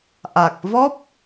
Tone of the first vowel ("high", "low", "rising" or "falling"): low